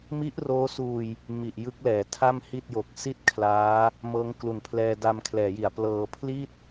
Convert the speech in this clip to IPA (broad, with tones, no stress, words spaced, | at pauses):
mi˦˥ʔroː˦˥suː˧j | mi˨˩ʔjɯ˦˥k̚lɛː˩˦ tʰa˥˩mhi˥˩t̚jo˨˩k̚ si˥˩t̚kʰlaː˦˥ | mɤː˦˥ŋklu˨˩npʰlɛː˧ da˧mkʰlɛː˩˦ji˩˦a̯plɤː˧ pʰli˥˩t̚